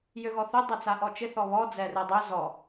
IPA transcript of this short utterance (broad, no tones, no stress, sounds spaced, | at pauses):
j ø ɣ ɔ θ ø dˤ ɛ t͡s a ʔ ɔ t͡ʃ ɪ θ ɔ β ɔ d͡z ɛ r ɛ dˤ ø z ɔ